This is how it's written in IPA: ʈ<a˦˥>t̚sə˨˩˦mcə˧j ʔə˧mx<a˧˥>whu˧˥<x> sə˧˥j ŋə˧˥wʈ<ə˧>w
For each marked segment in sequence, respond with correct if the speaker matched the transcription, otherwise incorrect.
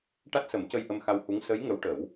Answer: correct, incorrect: a˧, incorrect: ŋ, incorrect: ə˨˩˦

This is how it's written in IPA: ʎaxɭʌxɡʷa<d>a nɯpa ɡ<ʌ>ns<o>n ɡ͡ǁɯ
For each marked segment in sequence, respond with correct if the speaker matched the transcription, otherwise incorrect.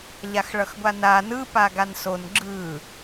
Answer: incorrect: n, incorrect: a, correct

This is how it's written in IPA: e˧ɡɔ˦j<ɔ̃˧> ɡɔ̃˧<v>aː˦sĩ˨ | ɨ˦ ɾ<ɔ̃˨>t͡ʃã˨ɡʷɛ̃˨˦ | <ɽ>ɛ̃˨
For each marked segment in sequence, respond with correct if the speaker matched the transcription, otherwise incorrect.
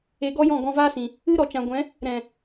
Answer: incorrect: ɔ̃˦˨, correct, incorrect: ɔ˨, incorrect: ɾ

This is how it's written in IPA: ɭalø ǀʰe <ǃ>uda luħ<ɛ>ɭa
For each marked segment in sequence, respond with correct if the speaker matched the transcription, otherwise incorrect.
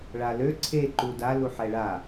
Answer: correct, correct

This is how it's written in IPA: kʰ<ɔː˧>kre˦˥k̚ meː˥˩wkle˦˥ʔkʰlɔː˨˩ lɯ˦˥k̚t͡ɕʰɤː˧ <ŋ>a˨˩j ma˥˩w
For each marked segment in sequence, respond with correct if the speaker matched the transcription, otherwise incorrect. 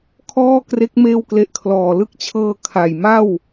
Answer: incorrect: ɔː˥˩, incorrect: kʰ

